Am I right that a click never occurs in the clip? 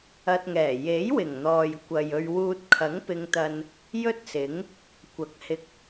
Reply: yes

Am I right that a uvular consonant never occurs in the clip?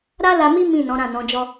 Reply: yes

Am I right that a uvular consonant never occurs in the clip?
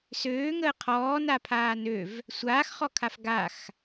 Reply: no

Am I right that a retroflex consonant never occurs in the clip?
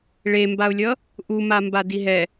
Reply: no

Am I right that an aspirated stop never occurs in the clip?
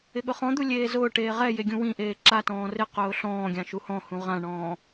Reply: yes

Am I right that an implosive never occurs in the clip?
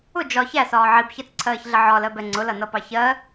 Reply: yes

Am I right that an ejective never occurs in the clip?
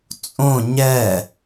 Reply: no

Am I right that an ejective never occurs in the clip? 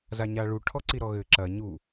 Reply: yes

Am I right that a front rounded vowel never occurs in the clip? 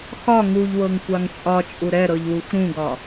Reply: yes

